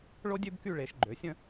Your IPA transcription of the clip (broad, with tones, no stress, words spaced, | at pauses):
ɭo˥dʲø˥bky˥˧ ɭe˩˧ʃɡ͡ǃø˩˧sʲə̃˥˧